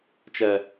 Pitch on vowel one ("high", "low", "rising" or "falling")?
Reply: low